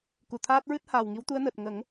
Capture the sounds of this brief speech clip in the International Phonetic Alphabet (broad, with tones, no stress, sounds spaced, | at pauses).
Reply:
k u˨˩ t̪ʰ aː˦˥ t̚ ɹ ɨ˦˥ t̚ h aː˨˩ w ŋ i˧˥ w t̪ u˧˥ ə̯ n əː˨˩ t̚ ŋ ə˨˩˦ ŋ